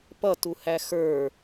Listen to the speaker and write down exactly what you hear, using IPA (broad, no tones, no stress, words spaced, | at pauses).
pʌtuhæ xə˞